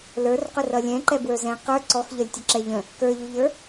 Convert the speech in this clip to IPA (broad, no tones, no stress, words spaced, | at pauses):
lə˞rqʊ rʌlʲɛ̃ǃɛ bwə˞zɛ̃ qə˞ ǀɔxʎʌlʲ tʲʌǁɛʎə̃ | kə˞ʎuʎə˞